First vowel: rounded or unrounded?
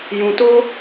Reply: rounded